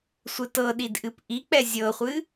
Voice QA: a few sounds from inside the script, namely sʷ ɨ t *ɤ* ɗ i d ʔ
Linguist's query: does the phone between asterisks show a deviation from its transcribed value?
no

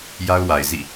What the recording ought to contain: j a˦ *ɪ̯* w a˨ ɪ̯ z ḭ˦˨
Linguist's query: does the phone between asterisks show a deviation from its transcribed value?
yes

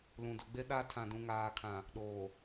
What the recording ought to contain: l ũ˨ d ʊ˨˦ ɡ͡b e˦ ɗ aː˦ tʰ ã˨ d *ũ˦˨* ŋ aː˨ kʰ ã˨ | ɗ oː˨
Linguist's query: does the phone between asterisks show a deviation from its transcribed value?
yes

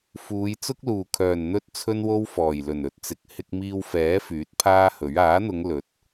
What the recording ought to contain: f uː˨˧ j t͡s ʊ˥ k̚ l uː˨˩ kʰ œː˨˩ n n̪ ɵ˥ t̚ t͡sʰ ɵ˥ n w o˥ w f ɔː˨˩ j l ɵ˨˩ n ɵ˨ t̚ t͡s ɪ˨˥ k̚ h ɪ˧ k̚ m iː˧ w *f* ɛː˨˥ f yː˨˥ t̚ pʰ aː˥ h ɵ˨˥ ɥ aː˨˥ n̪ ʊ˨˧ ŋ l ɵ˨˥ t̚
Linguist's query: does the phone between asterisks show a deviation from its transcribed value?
no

